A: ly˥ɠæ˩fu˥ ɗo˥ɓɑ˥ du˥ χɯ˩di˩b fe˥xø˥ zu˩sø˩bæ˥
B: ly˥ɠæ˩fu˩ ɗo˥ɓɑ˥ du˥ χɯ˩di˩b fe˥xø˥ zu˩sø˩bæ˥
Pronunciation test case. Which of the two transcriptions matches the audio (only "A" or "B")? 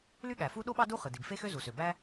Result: A